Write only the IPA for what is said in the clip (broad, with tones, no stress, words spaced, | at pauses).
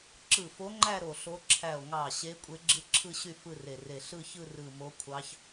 ǁɯ˧˩fo˧˥ŋ͡ǃæ˥˧ ɾo˧˩ɬo˧˥ ǁʰæ˧˩o̯ŋɑ˧˩ ɕe˧˥ kʷʼe˧˥ɡ͡ǁɯ˥˧ǁʰɯ˥˧ɕy˥˧ fɯ˥˧re˧˩re˧˩ ɬɯ˥˧çɯ˥˧ rɯ˧˩mo˧˥kʷʰɑ˧˥ç